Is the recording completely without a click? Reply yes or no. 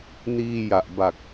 yes